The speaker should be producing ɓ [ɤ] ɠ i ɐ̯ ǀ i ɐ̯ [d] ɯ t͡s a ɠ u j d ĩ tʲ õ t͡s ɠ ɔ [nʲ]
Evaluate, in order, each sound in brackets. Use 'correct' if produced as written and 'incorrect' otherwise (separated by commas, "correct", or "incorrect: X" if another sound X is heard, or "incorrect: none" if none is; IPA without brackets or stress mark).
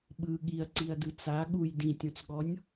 incorrect: ɯ, correct, correct